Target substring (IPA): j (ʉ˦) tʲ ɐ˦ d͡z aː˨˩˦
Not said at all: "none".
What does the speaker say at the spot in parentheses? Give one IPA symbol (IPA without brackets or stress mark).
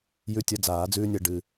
ʉ˦